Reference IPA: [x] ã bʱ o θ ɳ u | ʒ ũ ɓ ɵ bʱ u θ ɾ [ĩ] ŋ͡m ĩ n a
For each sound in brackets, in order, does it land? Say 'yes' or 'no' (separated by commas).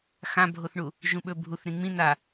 yes, yes